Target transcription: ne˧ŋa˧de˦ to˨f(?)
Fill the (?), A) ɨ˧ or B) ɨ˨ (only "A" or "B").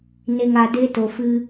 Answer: A